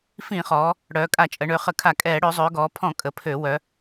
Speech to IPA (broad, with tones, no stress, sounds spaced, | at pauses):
f ĩ˧˩˧ χ ɔː˩˧ | ɽ œː˩˧ kʼ a˧˩˧ t͡ʃʼ ə˩˧ ɳ ø˩˧ χ ə˧˩˧ kʰ a˧˩˧ kʼ ɛː˧˩˧ ɽ ø˩˧ zˤ øː˩˧ ɡ ɔː˩˧ pʰ ɔ̃˧˩˧ kʼ ə˩˧ pʰ ø˧˩˧ w œ˩˧